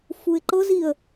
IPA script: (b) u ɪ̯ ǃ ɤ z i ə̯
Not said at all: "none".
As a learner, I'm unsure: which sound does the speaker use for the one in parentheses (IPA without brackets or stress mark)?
f